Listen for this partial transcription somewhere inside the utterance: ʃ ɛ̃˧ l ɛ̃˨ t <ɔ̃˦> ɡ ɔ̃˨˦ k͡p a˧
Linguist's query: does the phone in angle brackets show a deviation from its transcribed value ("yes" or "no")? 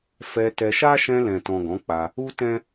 yes